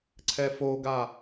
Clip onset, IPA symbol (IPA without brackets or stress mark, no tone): ǀʰ